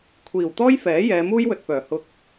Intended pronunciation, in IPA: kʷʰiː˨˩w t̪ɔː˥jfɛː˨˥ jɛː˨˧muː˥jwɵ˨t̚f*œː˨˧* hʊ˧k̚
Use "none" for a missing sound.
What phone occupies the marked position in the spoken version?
œː˨˩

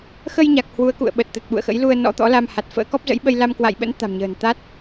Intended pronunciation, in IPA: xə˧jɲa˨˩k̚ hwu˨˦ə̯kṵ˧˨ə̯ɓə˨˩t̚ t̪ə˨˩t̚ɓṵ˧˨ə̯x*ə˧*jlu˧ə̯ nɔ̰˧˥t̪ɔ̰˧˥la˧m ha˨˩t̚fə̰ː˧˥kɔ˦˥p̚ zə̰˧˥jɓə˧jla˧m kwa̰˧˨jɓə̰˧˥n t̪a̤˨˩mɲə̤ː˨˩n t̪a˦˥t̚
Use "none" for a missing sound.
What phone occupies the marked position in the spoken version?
ə̰˧˥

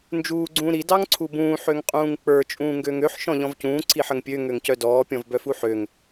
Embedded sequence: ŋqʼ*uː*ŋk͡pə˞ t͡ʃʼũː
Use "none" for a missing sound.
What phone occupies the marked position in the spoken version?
ũː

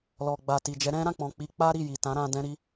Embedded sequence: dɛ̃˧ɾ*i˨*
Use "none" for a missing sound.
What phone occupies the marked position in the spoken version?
i˧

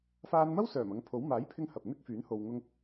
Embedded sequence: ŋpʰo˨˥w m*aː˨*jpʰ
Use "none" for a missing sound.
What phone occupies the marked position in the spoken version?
aː˨˥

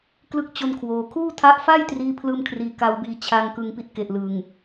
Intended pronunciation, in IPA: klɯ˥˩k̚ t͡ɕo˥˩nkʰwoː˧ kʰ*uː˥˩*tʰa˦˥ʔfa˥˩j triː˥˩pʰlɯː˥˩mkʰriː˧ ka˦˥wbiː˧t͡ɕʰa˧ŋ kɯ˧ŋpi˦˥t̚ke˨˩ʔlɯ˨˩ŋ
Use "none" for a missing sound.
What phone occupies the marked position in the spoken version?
uː˥˩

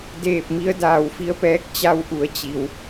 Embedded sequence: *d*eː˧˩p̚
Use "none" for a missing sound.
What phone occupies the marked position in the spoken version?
d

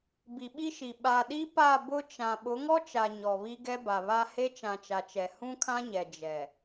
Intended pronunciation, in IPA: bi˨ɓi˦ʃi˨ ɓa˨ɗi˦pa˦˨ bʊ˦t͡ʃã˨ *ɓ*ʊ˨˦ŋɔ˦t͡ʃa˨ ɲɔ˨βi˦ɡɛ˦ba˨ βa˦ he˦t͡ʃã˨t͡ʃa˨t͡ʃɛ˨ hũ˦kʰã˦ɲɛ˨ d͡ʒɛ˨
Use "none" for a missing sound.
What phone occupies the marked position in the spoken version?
ɓ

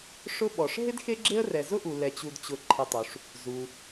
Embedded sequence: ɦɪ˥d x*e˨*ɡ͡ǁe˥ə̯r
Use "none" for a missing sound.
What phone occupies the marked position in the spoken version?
e˥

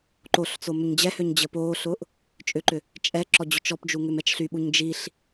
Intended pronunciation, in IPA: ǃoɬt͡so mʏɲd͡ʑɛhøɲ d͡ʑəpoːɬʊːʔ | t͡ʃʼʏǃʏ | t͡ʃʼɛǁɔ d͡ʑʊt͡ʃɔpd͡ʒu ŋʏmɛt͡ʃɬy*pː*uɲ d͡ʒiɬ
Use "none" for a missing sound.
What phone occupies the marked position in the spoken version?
ɓ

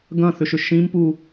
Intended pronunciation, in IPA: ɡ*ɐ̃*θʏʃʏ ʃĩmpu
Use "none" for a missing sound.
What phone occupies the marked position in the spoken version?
ɐ̃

